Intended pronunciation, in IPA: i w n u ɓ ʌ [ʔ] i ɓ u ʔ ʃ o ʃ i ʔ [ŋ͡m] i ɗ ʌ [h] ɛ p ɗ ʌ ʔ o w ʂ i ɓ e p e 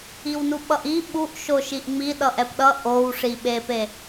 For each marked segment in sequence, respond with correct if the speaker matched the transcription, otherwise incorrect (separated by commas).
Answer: correct, correct, incorrect